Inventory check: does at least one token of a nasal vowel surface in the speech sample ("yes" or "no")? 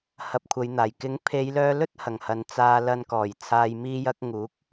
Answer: no